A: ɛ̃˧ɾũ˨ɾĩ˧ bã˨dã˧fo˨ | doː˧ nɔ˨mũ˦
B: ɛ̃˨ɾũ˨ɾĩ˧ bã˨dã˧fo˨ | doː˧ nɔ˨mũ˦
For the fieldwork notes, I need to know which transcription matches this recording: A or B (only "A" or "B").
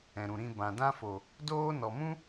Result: B